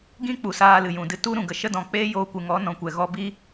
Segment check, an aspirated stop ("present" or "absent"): absent